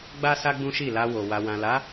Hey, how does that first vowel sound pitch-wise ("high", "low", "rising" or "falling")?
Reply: high